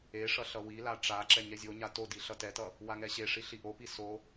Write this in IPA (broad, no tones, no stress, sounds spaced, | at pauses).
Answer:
e ʂ ʌ ɬ ʌ w i l a ʈ͡ʂ a ǁ ɛ ɲ ɛ zʲ o ɲ a t o d i ɬ ʌ t ɛ t ʌ | w a ŋ ɛ ɕ e ʂ i ɬ i ʔ o p i s o